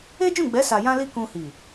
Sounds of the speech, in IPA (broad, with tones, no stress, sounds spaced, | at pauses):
e˦ d͡ʒ ũ˦˨ ɡ͡b ɛ˨˦ s a˧ j ã˦ l i˦ k ũ˧ h i˨